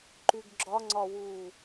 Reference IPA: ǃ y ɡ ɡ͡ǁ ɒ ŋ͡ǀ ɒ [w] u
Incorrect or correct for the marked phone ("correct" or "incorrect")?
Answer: correct